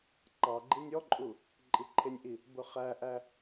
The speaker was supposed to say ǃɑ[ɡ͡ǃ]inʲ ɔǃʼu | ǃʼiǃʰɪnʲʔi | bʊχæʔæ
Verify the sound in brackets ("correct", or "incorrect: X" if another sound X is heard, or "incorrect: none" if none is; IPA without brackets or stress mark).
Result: correct